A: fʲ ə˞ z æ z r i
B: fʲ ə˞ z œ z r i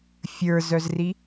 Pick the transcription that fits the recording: B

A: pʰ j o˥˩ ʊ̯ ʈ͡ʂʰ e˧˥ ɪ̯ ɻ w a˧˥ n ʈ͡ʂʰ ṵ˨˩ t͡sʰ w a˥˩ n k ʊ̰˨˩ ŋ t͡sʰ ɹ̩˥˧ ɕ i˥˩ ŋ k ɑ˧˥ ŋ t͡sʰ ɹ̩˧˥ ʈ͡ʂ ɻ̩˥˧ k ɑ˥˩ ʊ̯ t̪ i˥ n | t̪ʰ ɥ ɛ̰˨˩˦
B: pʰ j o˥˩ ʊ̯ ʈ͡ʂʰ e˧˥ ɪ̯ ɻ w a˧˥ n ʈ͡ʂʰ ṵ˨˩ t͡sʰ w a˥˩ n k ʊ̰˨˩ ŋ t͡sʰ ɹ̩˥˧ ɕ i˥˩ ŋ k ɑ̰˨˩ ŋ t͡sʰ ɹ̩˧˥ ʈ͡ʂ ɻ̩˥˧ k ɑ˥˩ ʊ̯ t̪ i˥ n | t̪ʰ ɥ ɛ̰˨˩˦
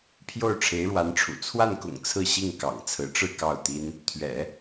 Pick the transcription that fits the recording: B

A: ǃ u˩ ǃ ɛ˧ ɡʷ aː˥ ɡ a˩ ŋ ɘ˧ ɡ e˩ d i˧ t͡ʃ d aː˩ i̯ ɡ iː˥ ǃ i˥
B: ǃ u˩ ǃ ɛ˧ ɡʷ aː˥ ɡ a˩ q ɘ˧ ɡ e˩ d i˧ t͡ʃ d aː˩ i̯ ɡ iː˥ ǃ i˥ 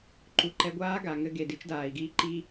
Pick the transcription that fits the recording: A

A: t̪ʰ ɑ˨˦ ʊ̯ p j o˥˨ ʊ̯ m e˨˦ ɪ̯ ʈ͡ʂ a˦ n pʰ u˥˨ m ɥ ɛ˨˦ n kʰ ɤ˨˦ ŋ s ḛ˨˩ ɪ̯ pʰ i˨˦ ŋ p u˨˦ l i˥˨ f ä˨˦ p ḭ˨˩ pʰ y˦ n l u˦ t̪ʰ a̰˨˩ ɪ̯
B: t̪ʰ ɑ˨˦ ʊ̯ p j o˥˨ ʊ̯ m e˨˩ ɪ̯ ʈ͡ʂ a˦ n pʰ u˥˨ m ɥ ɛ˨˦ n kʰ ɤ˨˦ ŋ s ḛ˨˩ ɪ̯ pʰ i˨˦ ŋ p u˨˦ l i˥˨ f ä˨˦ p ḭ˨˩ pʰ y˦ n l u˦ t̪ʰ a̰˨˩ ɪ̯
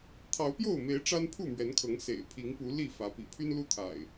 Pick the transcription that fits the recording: A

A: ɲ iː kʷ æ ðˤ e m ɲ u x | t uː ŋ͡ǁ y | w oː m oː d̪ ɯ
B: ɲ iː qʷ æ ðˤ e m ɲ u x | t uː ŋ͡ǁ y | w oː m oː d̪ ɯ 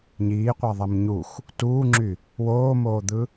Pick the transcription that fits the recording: B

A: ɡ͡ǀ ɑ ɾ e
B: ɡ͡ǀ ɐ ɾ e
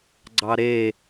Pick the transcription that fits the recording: A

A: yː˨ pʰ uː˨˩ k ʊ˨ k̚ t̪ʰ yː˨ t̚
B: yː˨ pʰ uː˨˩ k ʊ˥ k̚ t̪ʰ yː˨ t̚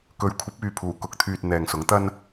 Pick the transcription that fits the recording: A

